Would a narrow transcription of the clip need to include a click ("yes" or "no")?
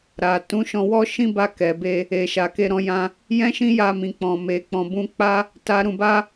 no